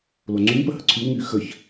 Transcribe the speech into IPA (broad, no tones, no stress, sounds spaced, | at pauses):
l o ŋ͡ǀ y m p ə h ə ǀʰ y w ŋ y x ə ç